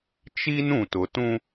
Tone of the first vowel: high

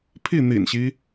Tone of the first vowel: falling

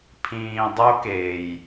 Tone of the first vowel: low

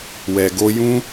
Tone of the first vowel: low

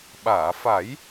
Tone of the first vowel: low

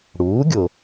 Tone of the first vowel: rising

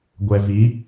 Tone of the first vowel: low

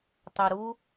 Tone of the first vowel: low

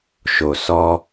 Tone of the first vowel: low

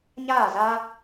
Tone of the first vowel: falling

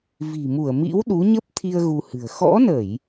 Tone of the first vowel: low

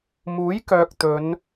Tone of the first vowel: rising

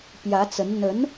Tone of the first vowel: rising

